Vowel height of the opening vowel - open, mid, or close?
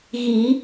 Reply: close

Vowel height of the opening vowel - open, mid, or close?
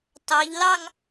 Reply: open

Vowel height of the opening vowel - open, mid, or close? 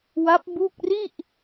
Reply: open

